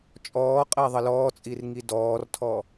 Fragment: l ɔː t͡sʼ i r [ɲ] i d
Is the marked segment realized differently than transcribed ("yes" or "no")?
yes